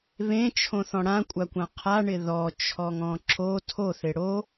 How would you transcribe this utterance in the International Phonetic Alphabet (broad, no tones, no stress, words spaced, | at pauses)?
βẽt͡ʃʰõθɔ̃ ɽãkʷʼakʷã qʰaɳɪ ðɔt͡ʃʰɔŋɔ̃ ǁo tʰoθɪ ɽo